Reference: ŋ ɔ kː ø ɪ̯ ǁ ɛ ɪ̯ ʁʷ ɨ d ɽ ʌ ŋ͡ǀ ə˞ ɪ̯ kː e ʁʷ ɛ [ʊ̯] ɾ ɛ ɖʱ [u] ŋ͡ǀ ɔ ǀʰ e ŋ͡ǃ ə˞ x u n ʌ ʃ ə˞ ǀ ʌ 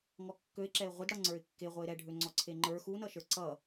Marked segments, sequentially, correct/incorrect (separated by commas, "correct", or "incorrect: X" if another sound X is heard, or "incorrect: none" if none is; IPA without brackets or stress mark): incorrect: ɪ̯, incorrect: ø